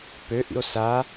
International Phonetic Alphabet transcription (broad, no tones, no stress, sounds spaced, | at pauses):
p ø ʔ ḭ o̯ s a